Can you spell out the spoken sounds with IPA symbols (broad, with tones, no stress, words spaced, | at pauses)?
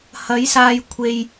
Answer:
hɐ˨˥jsaː˧j kʷʰe˧j